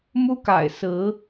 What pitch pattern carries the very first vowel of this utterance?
high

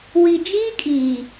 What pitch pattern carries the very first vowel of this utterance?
low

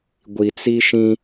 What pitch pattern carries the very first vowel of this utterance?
low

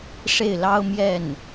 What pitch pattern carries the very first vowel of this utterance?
falling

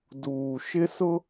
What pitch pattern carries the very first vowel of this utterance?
low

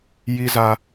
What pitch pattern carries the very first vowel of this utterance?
low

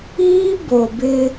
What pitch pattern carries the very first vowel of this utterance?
high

